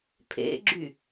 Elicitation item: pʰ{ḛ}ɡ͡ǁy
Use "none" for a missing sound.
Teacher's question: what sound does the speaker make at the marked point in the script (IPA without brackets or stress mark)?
ḛ